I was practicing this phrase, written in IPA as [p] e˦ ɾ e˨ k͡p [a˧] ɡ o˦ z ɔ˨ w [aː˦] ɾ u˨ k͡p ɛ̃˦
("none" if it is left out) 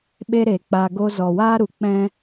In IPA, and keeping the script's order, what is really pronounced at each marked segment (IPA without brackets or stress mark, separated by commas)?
ɓ, a˧, aː˦